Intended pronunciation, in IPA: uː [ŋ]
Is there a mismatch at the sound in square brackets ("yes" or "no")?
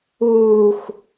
yes